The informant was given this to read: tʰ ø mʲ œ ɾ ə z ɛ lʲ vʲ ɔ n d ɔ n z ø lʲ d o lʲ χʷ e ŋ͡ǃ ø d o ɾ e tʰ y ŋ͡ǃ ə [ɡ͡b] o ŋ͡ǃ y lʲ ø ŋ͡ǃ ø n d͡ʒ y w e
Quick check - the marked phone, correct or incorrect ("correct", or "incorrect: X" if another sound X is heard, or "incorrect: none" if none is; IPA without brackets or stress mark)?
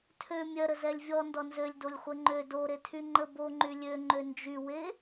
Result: incorrect: b